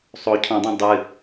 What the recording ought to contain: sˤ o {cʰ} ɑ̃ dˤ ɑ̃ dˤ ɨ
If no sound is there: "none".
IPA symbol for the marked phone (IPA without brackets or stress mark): cʰ